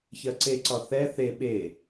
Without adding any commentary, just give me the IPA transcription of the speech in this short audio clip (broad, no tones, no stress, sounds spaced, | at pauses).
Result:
ç ɜ ǀ e ǀ ɒ θ ɛ θ e ɓ e